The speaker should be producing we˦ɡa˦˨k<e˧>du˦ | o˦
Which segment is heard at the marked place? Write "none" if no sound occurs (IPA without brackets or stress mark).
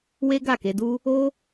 e˧